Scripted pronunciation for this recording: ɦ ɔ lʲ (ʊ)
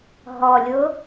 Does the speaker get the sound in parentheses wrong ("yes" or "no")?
no